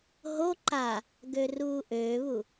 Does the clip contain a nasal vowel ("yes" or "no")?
no